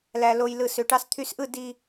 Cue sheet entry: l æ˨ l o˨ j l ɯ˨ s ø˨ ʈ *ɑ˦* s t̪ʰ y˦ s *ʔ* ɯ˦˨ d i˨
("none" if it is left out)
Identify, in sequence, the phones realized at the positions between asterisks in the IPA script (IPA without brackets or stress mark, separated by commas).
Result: ɑ˦, ʔ